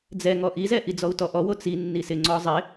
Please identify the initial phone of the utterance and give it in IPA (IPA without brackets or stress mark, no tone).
d͡z